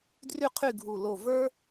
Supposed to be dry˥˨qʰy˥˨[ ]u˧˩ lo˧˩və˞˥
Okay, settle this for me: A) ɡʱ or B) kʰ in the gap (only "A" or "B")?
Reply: A